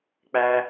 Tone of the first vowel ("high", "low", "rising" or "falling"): high